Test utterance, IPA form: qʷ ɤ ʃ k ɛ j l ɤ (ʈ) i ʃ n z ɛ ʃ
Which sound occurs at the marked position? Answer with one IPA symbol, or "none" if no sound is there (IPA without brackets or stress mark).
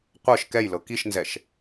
k